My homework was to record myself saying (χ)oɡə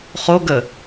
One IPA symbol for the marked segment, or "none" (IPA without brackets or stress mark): χ